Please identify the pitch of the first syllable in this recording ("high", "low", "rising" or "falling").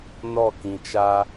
falling